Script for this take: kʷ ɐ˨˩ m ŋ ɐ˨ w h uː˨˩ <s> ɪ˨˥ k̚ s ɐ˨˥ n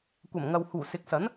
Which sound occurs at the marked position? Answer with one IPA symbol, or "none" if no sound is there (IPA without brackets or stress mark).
s